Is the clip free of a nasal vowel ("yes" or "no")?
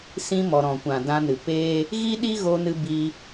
no